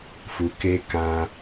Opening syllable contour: low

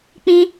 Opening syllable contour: high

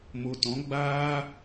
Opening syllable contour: low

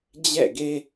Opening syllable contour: falling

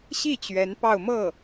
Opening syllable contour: falling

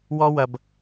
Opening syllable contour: high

